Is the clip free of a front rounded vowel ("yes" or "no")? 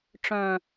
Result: no